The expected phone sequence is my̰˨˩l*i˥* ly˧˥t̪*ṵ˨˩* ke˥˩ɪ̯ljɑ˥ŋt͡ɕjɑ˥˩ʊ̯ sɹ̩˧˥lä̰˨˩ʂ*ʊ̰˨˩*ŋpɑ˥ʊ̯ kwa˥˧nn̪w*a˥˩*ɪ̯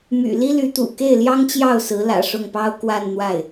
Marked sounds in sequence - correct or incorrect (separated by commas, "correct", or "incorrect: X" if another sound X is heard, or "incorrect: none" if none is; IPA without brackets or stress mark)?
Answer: correct, correct, incorrect: ʊ˥˩, correct